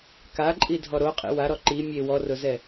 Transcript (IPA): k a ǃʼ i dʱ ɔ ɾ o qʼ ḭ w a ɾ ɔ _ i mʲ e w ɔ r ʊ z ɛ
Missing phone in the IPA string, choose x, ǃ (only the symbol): ǃ